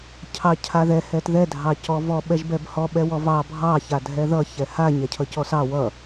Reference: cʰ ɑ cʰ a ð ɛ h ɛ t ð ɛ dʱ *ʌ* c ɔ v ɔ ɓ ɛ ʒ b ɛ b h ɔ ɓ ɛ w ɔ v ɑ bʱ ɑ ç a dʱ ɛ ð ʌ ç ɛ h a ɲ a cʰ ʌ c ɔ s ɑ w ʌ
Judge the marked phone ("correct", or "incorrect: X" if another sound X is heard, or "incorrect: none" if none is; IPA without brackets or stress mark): incorrect: ɑ